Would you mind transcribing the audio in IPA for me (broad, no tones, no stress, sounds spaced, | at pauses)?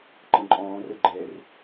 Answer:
ǃ ə̃ ǃʼ ɔ̃ː r ə ɡ͡ǃ ɛ r